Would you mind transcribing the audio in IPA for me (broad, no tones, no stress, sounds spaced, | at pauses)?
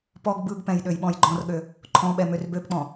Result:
p ɔ ɡ b ɯ ɡ p ɛ̃ j ɗ ø j ɓ ɔ̃ j ɡ͡ǃ ɔ̃ r ɠ ø | ǃʰ ɔ̃ ɓ ɛ m ø r b ø b k͡p ɔ̃